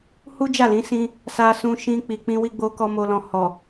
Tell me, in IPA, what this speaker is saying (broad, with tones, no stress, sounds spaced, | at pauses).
h u˦ d͡ʒ a˦˨ l ĩ˨˦ s ĩ˧ | s a˧ s ũ˧ ʃ ĩ˧ k͡p i˨ k͡p ĩ˧ w i˧ ɡ͡b o˧ k ɔ˧ m o˧ l ɔ̃˧ h ɔ˨